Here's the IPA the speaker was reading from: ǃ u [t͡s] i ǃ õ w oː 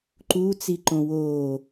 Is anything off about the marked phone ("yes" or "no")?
no